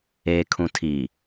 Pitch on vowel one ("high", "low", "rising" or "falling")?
low